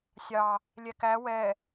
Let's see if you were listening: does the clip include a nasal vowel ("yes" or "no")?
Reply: no